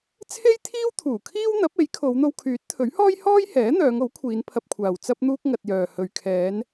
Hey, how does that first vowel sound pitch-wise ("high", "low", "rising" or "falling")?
high